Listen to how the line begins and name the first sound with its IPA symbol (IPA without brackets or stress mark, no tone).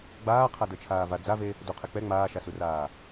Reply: ɡ͡b